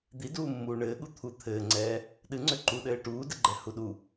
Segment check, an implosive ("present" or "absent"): present